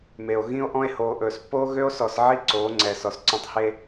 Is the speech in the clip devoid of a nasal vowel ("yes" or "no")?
no